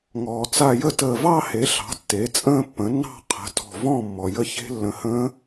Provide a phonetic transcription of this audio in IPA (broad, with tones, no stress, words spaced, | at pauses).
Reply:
ŋɔː˩t͡sa˧˩jə˥˩ təː˧˩vɑ˥˧he˩˥ɬɑ̤˩˥ tːe˩˥t͡sʼə̃ː˥˧pːə̃˩˥nːɑ̤˥˧ qʰə̤˩˥ tɔ̤˧˩vɔ̃˥˩ mːɔ˩jə˥˩çe̤˦˥ lːə̃˧˩hə̃ː˦˥